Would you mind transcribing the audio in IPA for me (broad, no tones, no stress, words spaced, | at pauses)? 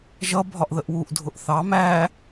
ʒʌ bʱɒʔðəʔwuʔ dʱʊʔθɑ mæ